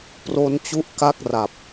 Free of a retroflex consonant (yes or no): yes